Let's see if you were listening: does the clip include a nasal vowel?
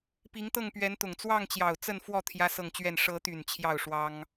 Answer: no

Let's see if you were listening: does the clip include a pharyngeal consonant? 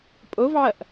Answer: yes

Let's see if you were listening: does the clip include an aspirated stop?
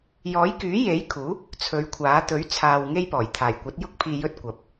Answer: yes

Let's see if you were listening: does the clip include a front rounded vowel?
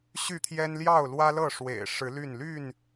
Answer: yes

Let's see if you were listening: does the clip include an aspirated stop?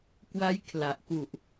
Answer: yes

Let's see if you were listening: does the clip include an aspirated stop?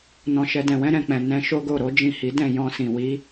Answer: no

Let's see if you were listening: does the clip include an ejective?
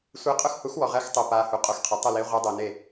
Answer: yes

